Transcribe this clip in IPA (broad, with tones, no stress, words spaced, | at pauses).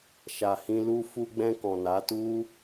ʃa˨hĩ˧lu˦ fu˧ɡ͡bɛ̃˧ kɔ̃˨na˨˦tu˦